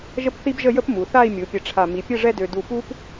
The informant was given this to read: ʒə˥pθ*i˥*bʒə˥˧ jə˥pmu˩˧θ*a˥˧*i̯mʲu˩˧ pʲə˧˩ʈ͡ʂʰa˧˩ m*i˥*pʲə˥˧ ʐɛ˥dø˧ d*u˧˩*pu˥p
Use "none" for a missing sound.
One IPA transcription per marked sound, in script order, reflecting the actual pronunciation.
i˥, a˥˧, i˩˧, u˧˩

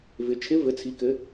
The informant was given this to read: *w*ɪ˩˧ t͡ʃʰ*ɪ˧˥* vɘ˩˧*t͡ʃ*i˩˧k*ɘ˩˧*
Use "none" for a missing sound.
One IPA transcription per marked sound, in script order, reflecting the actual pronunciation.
v, ɪ˧˥, t͡sʰ, ɘ˩˧

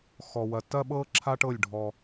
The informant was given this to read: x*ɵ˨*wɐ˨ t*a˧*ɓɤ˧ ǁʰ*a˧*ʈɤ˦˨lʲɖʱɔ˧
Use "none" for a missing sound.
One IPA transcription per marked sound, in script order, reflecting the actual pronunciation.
ɔ˨, ɐ˧, a˦

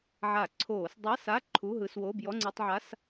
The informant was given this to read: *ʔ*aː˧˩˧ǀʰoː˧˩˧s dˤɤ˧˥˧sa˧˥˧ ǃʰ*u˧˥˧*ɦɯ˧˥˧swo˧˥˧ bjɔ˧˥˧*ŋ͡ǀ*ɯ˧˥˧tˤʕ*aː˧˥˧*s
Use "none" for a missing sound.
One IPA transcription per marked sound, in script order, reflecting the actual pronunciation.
ʕ, u˧˥˧, ŋ͡ǀ, a˧˥˧

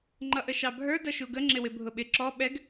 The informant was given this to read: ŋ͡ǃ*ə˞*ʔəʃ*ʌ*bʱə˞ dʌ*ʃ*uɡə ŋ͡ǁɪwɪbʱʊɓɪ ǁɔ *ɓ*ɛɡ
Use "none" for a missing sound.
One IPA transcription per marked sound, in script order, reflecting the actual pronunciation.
ʌ, ɑ, ʃ, ɓ

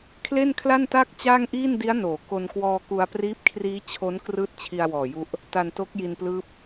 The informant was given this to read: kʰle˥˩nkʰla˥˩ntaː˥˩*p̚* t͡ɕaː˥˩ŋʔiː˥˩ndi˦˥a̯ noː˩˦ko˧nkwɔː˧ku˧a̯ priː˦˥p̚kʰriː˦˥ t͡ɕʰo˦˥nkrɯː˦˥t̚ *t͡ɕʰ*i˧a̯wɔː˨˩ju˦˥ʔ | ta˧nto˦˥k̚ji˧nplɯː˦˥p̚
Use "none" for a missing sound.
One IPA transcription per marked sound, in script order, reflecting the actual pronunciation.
k̚, t͡ɕʰ

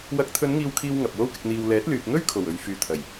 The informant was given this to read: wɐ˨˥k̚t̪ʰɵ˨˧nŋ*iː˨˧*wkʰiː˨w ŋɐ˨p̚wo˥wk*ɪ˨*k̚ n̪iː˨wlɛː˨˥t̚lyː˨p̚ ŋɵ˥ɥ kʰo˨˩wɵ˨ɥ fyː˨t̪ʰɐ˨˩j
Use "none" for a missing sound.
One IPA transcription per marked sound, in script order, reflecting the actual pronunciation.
iː˨, ɪ˧

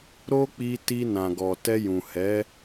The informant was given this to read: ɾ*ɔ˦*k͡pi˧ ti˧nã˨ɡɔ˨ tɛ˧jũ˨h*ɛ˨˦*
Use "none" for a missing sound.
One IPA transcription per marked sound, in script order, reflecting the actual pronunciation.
o˦, ɛ˨˦

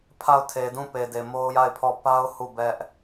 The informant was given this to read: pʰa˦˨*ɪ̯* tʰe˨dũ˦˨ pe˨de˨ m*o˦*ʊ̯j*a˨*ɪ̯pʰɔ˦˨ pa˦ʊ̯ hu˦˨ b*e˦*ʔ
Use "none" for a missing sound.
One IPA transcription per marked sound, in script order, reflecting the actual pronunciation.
ʊ̯, o˦, a˦˨, ɛ˦

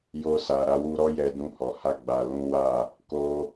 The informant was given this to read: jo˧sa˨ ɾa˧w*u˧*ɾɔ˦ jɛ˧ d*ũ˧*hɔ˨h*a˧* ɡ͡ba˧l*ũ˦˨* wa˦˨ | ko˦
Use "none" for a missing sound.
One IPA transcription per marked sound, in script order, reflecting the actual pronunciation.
u˧, ũ˧, a˧, ũ˦

